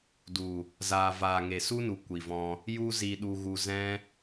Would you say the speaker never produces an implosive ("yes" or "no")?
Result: no